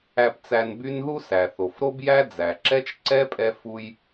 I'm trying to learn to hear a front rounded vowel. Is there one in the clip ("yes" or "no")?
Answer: yes